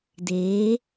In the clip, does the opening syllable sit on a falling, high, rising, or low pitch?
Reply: rising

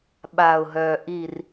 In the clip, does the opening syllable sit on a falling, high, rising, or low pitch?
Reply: low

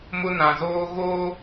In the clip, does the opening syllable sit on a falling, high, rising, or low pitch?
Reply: high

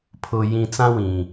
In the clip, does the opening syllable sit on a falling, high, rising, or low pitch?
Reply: low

